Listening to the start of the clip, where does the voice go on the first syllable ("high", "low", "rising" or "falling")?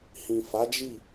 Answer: low